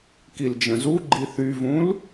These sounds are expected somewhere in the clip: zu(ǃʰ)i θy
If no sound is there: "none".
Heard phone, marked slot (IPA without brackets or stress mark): ɡ͡ǃ